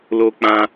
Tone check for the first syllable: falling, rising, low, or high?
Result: high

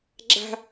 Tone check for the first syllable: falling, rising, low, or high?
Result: high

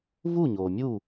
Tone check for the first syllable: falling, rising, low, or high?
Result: falling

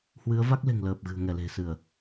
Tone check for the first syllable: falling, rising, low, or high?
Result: rising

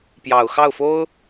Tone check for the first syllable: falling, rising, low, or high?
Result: low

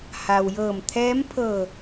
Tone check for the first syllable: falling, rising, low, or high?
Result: low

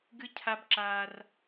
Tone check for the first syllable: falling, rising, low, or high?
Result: high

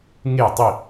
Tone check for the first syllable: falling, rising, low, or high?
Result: falling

